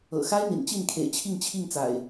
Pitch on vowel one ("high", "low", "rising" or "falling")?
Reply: low